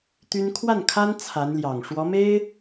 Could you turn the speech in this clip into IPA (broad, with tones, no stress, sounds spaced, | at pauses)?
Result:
t̪ y˥ n kʰ w a˥˩ n kʰ a˥ n t͡sʰ a˧˥ n l j ɑ˨˩ ŋ ʂ w ɔ˧˥ m e˥ ɪ̯